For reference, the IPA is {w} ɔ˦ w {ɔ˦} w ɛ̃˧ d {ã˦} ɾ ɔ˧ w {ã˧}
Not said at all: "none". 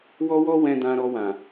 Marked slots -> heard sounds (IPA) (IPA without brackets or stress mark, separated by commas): w, ɔ˦, ã˧, ã˨